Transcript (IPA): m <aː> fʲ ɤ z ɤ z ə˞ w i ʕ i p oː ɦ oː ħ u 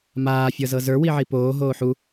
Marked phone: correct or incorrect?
correct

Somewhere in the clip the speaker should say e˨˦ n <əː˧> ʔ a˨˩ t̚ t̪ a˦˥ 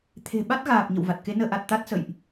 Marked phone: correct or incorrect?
correct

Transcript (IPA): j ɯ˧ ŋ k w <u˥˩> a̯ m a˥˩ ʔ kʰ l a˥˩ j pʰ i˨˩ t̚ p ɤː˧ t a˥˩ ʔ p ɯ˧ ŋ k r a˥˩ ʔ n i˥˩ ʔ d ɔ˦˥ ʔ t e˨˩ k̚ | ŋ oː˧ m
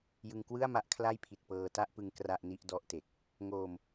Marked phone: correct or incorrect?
incorrect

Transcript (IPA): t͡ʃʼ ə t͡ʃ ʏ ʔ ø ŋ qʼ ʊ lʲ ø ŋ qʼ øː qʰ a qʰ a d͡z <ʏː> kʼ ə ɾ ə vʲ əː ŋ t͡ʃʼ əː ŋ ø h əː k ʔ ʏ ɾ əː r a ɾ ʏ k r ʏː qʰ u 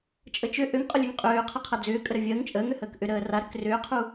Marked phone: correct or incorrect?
correct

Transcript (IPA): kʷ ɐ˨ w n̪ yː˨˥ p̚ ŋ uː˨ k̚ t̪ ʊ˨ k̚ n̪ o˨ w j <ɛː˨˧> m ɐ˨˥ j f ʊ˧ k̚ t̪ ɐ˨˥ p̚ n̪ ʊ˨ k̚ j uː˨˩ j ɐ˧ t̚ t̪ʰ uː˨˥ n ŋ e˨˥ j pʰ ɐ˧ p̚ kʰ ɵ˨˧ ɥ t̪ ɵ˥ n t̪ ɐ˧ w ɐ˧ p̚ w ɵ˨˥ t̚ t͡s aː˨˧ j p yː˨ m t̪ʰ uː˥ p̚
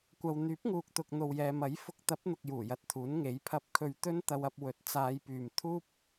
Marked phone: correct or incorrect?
incorrect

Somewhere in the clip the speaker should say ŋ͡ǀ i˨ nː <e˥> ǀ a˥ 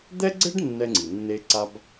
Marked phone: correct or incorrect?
correct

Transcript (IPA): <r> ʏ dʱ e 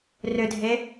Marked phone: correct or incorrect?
correct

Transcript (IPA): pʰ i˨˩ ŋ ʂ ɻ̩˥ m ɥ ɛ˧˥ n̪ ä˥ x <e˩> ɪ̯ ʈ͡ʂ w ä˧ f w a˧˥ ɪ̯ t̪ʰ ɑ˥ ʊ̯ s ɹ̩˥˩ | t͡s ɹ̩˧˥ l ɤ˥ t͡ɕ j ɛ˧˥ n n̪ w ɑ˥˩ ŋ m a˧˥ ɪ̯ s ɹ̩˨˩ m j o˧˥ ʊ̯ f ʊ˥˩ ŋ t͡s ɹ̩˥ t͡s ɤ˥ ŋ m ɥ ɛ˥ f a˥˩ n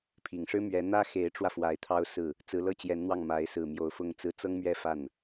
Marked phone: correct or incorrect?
incorrect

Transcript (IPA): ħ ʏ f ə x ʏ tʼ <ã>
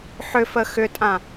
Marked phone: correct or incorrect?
correct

